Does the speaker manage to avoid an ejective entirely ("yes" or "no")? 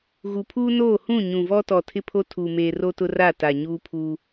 yes